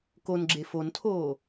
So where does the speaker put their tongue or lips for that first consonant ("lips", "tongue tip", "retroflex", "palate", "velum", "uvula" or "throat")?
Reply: velum